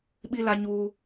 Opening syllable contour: high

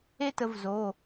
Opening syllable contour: high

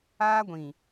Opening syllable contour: high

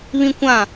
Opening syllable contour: high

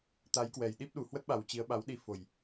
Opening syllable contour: rising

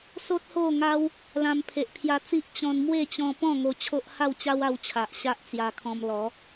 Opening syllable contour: high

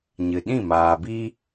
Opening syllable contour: low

